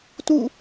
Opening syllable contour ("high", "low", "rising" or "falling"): falling